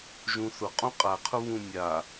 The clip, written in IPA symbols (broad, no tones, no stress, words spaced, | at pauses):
ʒũθʊ qʼũqʼaqʰʊ βũmʲa